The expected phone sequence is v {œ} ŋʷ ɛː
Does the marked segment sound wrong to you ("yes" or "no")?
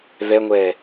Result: yes